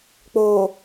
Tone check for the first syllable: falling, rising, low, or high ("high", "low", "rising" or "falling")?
low